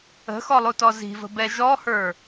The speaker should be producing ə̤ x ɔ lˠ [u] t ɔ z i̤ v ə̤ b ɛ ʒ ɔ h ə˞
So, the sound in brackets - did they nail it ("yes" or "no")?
yes